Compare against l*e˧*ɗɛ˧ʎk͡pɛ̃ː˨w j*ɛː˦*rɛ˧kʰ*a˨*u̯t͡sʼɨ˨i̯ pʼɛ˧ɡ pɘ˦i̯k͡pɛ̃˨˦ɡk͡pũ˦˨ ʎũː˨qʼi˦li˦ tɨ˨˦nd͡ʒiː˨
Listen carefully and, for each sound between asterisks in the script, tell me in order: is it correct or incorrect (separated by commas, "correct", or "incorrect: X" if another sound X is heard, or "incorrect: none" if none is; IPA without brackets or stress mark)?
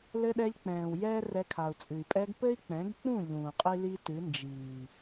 incorrect: ɘ˧, correct, correct